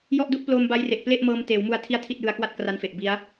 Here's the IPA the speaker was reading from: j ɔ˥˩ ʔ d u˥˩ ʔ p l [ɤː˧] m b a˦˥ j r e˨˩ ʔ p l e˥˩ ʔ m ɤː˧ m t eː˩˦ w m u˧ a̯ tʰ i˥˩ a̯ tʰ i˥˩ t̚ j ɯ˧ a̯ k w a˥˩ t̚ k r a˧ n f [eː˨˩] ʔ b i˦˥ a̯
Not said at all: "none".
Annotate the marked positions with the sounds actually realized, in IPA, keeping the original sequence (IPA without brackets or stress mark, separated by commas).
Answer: oː˧, e˨˩